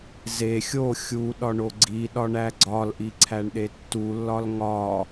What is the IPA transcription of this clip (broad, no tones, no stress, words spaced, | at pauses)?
ze xʲo xʲu ɗɒɳoɡ͡ǀiɗɒ ɳæɡ͡ǀɒlʔi ǀʰæɳɗetːulːɒl ŋɒ